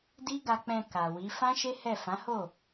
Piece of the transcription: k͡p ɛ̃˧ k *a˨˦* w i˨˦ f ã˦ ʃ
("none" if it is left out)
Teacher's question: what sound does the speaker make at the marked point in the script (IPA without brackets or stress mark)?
a˨